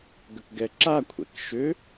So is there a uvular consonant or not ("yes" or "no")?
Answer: no